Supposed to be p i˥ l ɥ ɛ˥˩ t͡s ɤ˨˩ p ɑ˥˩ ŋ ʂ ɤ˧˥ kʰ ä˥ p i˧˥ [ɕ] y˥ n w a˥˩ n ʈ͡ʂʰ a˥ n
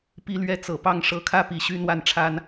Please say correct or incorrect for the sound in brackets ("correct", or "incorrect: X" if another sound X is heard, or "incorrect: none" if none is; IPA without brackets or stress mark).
correct